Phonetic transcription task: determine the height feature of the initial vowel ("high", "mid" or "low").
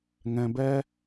mid